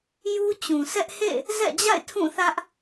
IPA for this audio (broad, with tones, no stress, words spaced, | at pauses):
ju˦t͡ɕũ˨sɛ˦ʔ hḛ˦˨ | zɛ̰˦˨d͡ʑa̰˦˨ɪ̯ tʰũ˦˨θä˦ʔ